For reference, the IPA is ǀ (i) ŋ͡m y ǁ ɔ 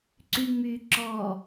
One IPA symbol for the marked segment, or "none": y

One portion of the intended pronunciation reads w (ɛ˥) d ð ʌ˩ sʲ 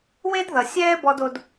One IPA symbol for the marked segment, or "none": e˥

